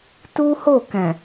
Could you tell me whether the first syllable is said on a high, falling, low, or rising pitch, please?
high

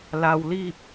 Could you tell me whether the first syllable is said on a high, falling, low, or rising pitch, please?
low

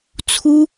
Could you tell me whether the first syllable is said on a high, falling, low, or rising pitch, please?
high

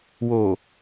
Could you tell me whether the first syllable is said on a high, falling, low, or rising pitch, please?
low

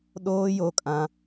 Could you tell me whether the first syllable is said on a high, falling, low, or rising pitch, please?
high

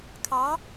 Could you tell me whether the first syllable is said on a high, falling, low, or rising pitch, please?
rising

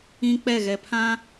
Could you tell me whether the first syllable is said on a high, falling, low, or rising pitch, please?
high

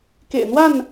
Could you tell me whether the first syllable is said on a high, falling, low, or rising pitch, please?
low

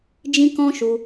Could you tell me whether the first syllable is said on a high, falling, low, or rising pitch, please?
high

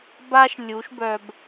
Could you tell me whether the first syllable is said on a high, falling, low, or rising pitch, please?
high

